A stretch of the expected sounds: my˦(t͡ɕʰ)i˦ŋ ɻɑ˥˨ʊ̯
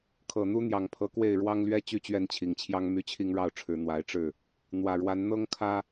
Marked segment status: correct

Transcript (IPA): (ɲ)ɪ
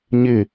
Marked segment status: correct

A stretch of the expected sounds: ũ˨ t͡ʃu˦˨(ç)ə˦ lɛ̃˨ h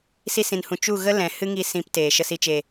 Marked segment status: incorrect: ɣ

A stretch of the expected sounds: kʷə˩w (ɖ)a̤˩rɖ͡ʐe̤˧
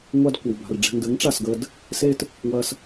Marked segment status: incorrect: b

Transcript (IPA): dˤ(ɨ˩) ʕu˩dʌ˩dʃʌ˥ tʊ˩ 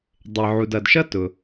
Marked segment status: incorrect: ɪ˩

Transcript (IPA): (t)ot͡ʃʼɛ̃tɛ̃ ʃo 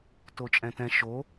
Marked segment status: correct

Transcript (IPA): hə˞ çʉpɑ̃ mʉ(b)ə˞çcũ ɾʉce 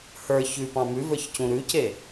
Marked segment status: incorrect: v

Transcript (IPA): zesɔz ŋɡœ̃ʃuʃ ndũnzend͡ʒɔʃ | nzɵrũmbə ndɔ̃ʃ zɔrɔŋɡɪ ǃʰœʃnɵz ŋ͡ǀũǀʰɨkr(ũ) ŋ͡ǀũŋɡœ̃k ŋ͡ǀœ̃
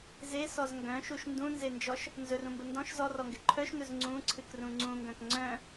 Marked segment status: correct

